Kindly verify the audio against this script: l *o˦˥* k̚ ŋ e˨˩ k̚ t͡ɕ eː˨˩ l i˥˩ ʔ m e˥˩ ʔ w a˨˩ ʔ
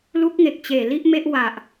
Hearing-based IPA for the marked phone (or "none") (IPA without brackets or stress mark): u˦˥